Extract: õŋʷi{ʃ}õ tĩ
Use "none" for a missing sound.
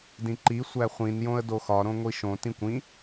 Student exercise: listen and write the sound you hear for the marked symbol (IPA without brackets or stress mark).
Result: ʃ